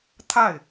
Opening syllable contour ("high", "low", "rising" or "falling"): falling